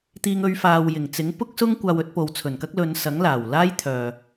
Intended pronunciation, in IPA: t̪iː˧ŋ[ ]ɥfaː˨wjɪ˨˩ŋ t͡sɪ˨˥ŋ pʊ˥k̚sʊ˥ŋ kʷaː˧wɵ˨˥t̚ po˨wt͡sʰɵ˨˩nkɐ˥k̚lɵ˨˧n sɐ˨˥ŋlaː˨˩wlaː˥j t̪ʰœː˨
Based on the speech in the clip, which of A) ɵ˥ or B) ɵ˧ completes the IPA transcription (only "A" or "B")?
B